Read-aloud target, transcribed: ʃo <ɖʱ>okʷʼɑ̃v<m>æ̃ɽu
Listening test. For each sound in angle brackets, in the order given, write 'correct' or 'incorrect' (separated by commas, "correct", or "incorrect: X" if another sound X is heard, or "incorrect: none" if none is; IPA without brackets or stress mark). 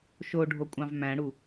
correct, correct